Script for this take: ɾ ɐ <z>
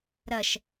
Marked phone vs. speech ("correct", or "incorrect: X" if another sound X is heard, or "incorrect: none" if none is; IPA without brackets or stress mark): incorrect: ʃ